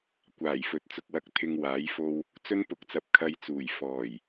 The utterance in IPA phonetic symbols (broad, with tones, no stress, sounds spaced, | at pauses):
kʷ aː˨˩ j f ɵ˨ t̚ t͡s ʊ˧ k̚ w ɐ˧ k̚ t̪ʰ ɪ˧ ŋ w aː˨˥ j f o˧ w | t͡s ɵ˥ n p ʊ˨˥ k̚ t͡s ɐ˨ p̚ kʰ ɐ˧ j t͡s uː˨˩ j f ɔː˨˩ j